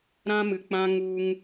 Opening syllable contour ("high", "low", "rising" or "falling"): high